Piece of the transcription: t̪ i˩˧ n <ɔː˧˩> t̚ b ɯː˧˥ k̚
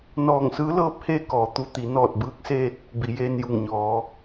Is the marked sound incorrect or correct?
correct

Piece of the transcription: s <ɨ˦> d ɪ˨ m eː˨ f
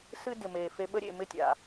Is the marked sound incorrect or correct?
correct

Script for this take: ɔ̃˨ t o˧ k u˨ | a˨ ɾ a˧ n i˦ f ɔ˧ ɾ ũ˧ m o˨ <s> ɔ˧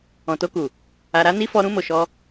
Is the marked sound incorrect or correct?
incorrect: ʃ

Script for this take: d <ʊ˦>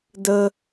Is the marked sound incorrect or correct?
incorrect: ə˦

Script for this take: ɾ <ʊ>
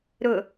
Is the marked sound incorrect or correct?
correct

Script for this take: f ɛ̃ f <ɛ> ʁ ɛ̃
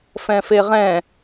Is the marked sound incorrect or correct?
incorrect: e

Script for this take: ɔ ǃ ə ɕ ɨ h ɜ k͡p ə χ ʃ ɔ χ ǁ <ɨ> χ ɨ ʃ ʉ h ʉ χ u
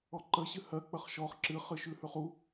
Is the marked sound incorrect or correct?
correct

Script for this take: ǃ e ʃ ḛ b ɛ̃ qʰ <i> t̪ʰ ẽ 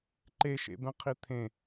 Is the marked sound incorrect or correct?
correct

